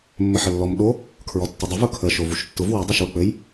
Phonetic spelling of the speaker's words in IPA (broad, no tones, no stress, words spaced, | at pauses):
mːɘħəlːɔm ɗo | kʰɹɔtːɘdˤɘ vʊkʰə ʃovuʃtːʊv wu dˤuʃwək͡pɘj